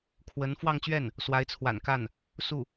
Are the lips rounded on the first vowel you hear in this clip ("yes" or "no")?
no